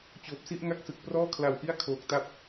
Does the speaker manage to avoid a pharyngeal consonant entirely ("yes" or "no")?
yes